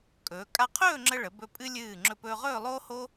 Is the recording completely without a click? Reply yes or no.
no